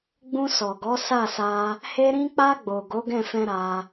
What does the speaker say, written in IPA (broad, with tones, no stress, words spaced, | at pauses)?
ɡ͡bũ˧sɔ˨ɡɔ˨˦ sa˦˨sa˧ | he˧ ɾĩ˧k͡pa˧ɡ͡bo˨ ɡo˨˦ɡɛ̃˦˨fɛ̃˧ ɾa˧